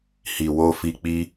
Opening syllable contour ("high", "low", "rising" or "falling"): low